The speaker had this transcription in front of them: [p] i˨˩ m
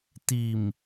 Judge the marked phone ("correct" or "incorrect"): incorrect